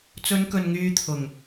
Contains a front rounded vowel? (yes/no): yes